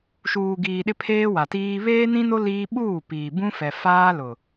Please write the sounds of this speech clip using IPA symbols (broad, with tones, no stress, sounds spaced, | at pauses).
ʃ uː˨ ɡ iː˨ ɗ ɪ˦ pʰ eː˦ w a˨ t iː˦ β eː˦ n ĩ˦ n o˦ l iː˦ ɓ uː˦˨ p iː˨ b ũ˦ f ɛ˨ f aː˦ l ʊ˨